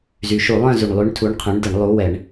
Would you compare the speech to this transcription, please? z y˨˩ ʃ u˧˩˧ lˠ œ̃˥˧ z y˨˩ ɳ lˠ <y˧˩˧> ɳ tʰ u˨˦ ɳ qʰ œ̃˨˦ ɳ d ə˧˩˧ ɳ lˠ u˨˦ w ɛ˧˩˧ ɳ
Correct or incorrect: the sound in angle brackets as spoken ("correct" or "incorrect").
incorrect